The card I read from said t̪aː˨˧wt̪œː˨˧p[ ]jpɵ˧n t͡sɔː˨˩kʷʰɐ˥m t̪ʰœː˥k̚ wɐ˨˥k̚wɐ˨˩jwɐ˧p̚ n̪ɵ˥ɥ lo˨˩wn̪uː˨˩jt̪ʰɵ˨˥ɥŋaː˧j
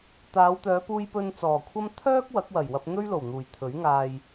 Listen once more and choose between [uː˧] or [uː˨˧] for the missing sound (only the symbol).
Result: uː˧